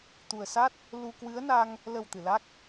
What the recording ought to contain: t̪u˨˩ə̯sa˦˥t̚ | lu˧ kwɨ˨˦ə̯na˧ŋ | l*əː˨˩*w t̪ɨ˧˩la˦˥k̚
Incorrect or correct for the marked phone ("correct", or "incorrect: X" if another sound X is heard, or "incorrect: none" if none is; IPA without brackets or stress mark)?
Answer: incorrect: ə˨˩